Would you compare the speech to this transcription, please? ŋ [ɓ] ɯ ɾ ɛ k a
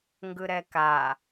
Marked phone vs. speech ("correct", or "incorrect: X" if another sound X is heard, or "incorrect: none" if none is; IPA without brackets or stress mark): incorrect: ɡ